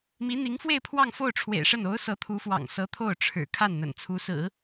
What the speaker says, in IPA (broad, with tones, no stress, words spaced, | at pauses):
mi˧˥n̪i˧˥ŋfwe˥˧ɪ̯ pʰwɑ˥˧ŋfo˥˩ʊ̯ʈ͡ʂʰwḛ˨˩ɪ̯ʂə˥˩n o˧˥ʊ̯ sɤ˧˥t̪ʰu˧˥fwɑ̰˨˩ŋsɤ˧˥ t̪ʰo˥˩ʊ̯ʈ͡ʂʰɻ̩˨˩ kʰa˥˩nn̪ə̰˨˩nt͡sʰu˧˥sɹ̩˨˩˦